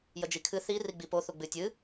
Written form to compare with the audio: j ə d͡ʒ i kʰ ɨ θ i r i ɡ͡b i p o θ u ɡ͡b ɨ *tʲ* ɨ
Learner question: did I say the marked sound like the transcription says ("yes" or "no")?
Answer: yes